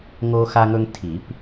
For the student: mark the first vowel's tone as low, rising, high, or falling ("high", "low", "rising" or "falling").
high